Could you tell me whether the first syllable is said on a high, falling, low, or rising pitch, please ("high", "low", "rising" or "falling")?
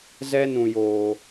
high